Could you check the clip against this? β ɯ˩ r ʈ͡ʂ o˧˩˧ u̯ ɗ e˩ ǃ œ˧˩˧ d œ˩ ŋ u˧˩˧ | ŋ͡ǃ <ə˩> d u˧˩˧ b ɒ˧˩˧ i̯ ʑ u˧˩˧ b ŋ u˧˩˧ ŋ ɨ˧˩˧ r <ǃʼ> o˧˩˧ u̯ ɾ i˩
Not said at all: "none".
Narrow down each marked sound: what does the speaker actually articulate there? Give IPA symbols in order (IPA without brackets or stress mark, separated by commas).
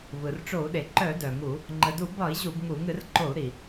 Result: ə˩, ǃ